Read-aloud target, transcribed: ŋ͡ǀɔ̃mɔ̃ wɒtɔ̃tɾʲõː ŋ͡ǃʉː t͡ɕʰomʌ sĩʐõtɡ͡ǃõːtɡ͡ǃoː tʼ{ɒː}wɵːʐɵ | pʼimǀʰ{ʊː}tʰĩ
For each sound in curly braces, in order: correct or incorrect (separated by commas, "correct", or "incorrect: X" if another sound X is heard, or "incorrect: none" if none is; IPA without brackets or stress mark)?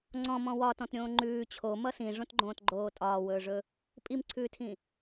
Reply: correct, incorrect: ʉː